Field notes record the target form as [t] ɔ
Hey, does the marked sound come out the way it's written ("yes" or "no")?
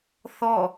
no